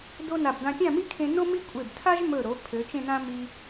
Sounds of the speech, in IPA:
do˥na˧˩b dã˧pʲã˥˧mi˥kʰẽ˧ no˥mi˥kʷʼe˧˩b tʰa˥ʒmɵ˧˩ɾo˩˧ pʰø˩˧t͡ʃẽ˥˧nã˥ mi˧

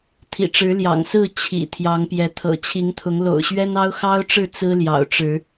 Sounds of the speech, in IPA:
t̪ʰḭ˨˩ʈ͡ʂɻ̩˨˦ ljɑ̰˨˩ŋsɹ̩˥˨ t͡ɕʰḭ˨˩ t̪ʰjɑ˨˦ŋpjɛ˨˦ t̪ʰɤ̰˨˩t͡ɕʰi˨˦ŋt̪ʰʊ˨˦ŋ lo̰˨˩ʊ̯ɕɥɛ˦nɑ˦ʊ̯ xɑ˦ʊ̯ʈ͡ʂɻ̩˥˨ t͡sɹ̩˦ljɑ̰˨˩ʊ̯ʈ͡ʂɻ̩˨˦

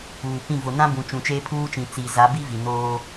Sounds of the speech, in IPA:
uː˨pĩ˦˨ vʊ˨nã˦bũ˨ t͡ʃũ˨t͡ʃeː˦pʰuː˦t͡ʃĩ˨ t͡si˨za˨˦bi˦ vi˨noː˦

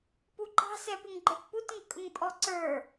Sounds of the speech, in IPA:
puǃɑ̤sɛpɪŋ ɡ͡ǃə˞tputŋɪkʼʊŋ pʼɔǀə˞

